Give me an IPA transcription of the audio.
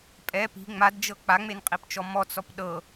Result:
pʼ ɛ p i̤ ŋ͡m a d d͡ʒ ɤ k͡p a ŋ͡m e n qʼ i p t͡ʃ ɔ m ɔ t͡s ɔ p ɗ ɤ

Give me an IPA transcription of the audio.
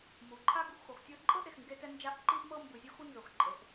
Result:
m u˩ ǃʰ a˥ ɡ u˩ ʔ x o˩ x tʲ ɤ˧ ǃʼ ɤ˥ ʔ e˩ x ŋ ɡ e˧ t ɛ˧ n d͡ʒ a˧ ʔ ǃ i˧ ʔ m ɤ˧ m b ɯ˩ zʲ o˥ x u˥ n z o˩ x ǃʼ e˩ ʔ

